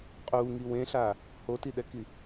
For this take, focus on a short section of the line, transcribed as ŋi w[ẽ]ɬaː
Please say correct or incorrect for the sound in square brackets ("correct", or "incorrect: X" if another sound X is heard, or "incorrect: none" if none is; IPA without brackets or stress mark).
correct